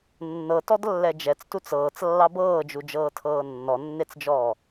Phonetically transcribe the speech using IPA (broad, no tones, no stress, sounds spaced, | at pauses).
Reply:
nː ɤ t ɔ d lː ɛ d͡ʒ ɛ t͡s t u t͡s ɤː t͡s lː ɑ b ɤː d͡ʒ u d͡ʒ ɤː tʰ ɤː nː ɔ nː e t͡s d͡ʒ ɔː